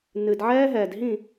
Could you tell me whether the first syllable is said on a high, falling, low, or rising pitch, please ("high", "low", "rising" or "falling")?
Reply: low